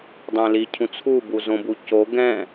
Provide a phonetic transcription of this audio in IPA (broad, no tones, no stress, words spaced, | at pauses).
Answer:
dˤɛ̃li cʰũt͡sʰu buzõbuco ɡɛ̃